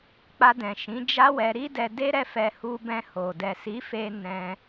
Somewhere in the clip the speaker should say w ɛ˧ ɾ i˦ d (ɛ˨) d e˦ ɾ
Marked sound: incorrect: ɛ˧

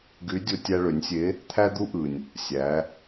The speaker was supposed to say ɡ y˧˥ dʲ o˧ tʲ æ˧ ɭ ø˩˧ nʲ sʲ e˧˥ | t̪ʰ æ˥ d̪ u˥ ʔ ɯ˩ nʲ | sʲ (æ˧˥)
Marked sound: incorrect: æ˩˧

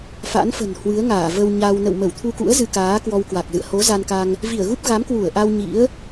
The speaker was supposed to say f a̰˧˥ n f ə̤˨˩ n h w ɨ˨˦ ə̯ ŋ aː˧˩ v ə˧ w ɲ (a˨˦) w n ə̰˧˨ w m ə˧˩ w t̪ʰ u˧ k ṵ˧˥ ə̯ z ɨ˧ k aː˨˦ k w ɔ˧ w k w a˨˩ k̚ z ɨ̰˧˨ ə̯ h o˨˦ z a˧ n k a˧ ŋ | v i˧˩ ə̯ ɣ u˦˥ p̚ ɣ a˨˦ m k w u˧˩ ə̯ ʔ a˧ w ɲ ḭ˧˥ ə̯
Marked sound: incorrect: a˧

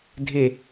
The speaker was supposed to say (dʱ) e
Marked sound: correct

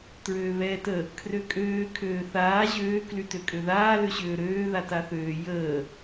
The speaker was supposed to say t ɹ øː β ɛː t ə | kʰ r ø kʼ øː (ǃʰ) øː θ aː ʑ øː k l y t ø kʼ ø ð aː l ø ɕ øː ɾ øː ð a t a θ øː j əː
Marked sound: incorrect: kʰ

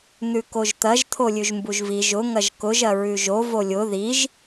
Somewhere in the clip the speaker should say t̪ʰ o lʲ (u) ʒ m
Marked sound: incorrect: ʉ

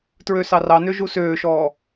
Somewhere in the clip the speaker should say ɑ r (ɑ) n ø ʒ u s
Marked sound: correct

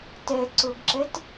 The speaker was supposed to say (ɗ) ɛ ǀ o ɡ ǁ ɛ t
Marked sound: incorrect: t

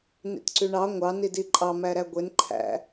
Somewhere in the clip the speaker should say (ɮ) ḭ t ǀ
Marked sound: incorrect: n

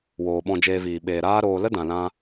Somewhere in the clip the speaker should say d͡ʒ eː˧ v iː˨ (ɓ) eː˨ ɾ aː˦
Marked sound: correct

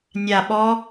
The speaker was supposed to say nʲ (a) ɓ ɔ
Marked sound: correct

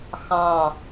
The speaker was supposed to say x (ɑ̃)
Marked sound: correct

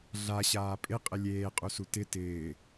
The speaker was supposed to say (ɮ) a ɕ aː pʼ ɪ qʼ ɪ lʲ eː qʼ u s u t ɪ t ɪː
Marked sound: correct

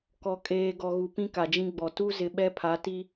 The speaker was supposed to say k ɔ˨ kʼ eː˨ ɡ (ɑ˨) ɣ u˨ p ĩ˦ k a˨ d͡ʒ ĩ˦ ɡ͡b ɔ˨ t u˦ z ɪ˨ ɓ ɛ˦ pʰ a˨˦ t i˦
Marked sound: incorrect: ɔ˨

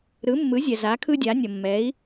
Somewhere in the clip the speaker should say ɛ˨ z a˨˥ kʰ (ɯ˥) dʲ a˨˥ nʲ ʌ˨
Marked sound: correct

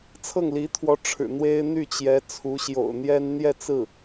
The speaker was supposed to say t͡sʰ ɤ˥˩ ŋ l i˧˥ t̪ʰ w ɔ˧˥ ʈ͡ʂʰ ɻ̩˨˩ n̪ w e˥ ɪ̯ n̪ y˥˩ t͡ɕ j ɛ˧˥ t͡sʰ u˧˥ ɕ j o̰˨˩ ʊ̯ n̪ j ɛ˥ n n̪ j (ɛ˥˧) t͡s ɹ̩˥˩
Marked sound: correct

